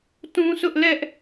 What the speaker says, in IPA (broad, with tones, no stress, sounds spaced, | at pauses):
t ũ˦ s ʊ˦ ʔ l ɛ˦ ʔ